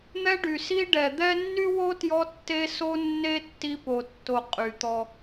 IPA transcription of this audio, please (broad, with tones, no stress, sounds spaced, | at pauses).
n̪ ɛ˦ ɖ y˩ s i˦ ɖ ɛ˩ d̪ ɛ˦ nː y˥ w o˥ t j ɔ˦ tː e˦ s o˦ nː e˦ tː i˦ p o˨ tː o˨ qʼ y˩ t̪ ɔ˨